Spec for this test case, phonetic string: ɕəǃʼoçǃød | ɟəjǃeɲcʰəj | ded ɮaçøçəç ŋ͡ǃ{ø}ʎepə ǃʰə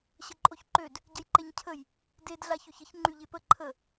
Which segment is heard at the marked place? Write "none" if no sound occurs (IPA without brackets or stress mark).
y